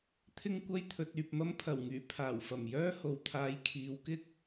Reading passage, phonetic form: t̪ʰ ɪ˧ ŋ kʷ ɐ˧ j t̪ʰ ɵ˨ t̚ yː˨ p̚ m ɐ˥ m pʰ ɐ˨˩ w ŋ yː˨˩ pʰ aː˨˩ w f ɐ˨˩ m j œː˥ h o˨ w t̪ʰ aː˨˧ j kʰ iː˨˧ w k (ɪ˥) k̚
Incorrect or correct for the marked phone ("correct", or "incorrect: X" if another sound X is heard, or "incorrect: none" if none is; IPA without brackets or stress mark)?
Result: correct